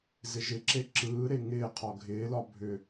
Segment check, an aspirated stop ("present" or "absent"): present